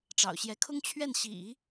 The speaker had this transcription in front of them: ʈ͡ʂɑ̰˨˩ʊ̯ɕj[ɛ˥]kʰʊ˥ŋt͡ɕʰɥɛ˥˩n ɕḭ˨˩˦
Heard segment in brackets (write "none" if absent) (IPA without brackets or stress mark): ɛ˧˥